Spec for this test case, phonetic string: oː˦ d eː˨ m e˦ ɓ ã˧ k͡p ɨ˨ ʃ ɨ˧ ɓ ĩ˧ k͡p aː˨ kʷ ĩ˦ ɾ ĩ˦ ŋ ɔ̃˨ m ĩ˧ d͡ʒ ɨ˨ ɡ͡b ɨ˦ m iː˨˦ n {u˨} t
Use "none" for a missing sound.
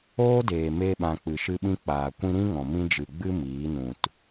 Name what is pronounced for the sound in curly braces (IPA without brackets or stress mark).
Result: ũ˨